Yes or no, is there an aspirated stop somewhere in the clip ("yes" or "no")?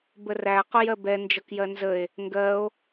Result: no